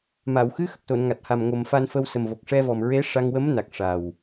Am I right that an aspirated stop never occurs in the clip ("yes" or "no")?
yes